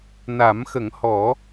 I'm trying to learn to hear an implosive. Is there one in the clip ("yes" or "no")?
no